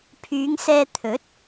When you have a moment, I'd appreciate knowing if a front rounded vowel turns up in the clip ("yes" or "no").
yes